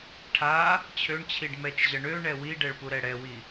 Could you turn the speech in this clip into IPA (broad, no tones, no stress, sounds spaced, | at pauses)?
ʈʰ a | t͡ɕʰ ø ɳ t͡ɕʰ i ɖ m ɛ t͡ʃ ʑ ʌ ɳ ø ɳ ɛ w i ɖ ɛ ɭ p u ɾ ɛ ɽ ɛ w i